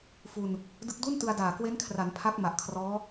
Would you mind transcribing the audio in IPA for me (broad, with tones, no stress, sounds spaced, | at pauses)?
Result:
f u˧ n | d ɯ˦˥ k̚ d u˥˩ n t ɯ˧ a̯ d aː˨˩ k w e˦˥ n kʰ r a˩˦ n pʰ a˦˥ k̚ m a˨˩ ʔ kʰ r ɔː˦˥